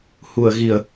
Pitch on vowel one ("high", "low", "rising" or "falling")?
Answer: low